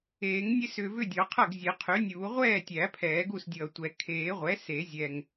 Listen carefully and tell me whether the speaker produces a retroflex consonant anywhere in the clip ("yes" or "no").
no